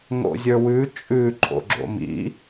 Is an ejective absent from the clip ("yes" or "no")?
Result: no